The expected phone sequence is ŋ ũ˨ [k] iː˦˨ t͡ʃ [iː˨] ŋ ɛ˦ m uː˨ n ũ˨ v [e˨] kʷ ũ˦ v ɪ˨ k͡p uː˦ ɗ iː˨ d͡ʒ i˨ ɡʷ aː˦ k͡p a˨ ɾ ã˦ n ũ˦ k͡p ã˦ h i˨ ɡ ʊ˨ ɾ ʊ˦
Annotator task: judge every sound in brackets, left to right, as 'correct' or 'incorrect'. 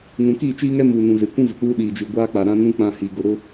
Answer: correct, incorrect: iː˦, correct

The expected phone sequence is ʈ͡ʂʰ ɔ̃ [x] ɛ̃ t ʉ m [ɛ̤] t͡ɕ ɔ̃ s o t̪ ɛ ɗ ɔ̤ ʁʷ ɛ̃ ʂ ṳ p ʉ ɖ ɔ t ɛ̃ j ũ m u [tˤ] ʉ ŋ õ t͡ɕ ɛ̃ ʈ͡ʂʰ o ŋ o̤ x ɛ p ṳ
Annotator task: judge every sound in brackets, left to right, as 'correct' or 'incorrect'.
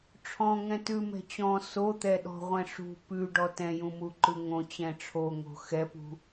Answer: incorrect: ŋ, correct, incorrect: ǃ

